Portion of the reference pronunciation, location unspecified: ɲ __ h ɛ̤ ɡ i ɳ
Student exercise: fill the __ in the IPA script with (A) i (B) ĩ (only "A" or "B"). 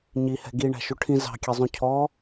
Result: A